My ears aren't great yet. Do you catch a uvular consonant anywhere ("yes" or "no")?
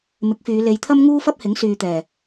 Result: no